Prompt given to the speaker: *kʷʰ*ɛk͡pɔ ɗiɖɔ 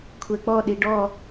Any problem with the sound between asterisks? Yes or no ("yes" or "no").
no